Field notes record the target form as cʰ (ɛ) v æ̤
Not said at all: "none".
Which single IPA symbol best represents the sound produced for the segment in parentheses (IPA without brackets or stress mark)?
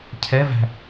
ɛ